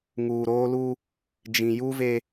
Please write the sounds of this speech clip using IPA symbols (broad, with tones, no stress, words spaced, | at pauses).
ŋuː˨ɾoː˦lu˦ | d͡ʒĩ˨ ju˦ve˦